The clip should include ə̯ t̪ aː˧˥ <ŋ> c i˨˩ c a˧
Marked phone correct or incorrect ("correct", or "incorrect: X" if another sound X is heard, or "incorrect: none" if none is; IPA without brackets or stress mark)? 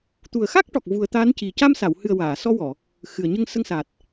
incorrect: n